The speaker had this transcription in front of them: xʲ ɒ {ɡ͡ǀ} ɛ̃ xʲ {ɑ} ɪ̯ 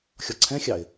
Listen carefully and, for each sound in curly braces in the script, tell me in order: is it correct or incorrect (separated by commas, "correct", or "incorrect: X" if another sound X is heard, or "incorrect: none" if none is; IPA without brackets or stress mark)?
incorrect: ǀʰ, correct